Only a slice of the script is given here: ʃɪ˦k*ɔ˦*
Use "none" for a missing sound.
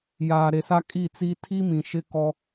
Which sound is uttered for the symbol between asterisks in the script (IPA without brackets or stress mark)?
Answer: ɔ˦